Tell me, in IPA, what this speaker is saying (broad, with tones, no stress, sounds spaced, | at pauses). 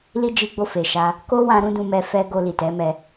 l i˦ d͡ʒ i˧ ɡ͡b o˧ f e˨ ʃ a˧ | k o˦ w ã˧ ɾ ũ˦ d ũ˧ m ɛ˧ f ɛ˧ ɡ o˧ l i˨ t ɛ˨˦ m ɛ˧